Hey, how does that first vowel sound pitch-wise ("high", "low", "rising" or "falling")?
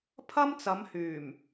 high